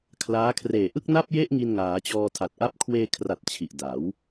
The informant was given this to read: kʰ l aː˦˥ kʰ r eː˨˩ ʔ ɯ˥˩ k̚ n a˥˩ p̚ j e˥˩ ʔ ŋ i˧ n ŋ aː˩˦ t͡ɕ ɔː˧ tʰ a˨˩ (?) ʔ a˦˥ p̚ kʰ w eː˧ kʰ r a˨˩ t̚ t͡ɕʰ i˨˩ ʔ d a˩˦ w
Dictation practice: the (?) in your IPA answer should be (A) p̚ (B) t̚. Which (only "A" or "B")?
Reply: B